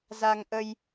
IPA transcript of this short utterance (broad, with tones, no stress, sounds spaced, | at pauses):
z a˧ ŋ ʔ ə˧ j